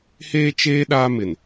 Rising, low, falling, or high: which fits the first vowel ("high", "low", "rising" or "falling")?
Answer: high